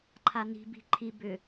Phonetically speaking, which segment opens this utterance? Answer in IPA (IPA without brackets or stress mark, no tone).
ǃʰ